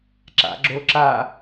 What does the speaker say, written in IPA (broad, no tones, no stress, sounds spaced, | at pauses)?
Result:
ǁ a̰ ɡ͡ǁ o ǁ a